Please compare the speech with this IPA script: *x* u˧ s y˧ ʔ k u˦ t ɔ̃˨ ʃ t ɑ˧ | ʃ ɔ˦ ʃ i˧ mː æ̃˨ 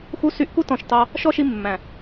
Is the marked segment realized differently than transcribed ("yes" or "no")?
no